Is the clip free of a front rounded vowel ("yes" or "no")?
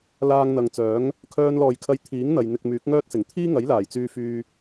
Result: no